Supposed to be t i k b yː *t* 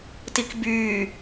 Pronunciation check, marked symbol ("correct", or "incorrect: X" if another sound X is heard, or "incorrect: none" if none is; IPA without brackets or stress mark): incorrect: none